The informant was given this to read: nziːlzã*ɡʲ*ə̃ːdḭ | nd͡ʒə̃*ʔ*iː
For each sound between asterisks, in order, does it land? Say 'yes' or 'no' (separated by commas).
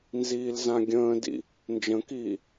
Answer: yes, no